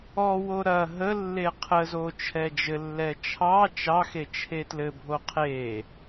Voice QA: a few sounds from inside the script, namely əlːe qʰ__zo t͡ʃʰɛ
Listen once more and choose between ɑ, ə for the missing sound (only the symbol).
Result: ə